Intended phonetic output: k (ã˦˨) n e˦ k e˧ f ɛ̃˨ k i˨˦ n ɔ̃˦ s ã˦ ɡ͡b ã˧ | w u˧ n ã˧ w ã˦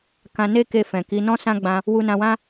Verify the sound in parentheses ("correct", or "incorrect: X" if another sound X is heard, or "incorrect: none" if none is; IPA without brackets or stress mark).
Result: incorrect: ã˧